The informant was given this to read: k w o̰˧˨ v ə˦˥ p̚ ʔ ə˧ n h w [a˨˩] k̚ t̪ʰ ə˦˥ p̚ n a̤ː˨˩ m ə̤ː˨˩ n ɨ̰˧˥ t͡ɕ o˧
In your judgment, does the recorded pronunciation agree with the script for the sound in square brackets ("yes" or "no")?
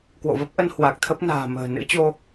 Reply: yes